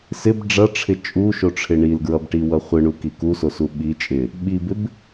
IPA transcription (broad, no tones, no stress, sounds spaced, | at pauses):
s ɪ b ɖ͡ʐ ʌ ʈ͡ʂʰ ɪ t͡ʃʼ u ʃ o ʈ͡ʂʰ ɪ ɳ i l ɡ ɹ ʌ b ʈ i w ʌ χʷ ɪ ɳ u k i k u s o s u ɓ i t͡ʃʼ ɪ | ɓ i b ɪ b